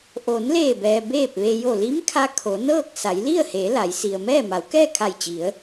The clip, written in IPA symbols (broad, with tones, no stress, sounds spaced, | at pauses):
ʔ o˩˧ n l eː˧˩ b ɛː˩ b eː˥˨ p̚ ʋ e˧ j o˧˩ l i˧˥ m kʰ a˧ kʰ o˩˧ n ɤː˥˨ k̚ s a˩˧ j l i˥˨ ə̯ h eː˩˧ l a˩˧ j s i˩ ə̯ m ɛː˥˨ m a˩˧ w k ɛː˥˨ kʰ a˧˩ j t͡ɕ i˩˧ ə̯